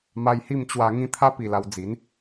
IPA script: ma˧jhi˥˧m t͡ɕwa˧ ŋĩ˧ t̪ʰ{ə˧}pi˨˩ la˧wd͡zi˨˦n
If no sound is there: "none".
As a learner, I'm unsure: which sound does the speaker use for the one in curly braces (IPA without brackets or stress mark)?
a˧